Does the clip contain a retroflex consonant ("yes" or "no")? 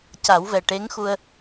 yes